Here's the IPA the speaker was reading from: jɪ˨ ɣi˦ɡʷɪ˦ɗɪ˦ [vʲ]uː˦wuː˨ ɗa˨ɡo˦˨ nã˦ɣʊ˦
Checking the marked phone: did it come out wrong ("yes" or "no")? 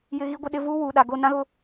yes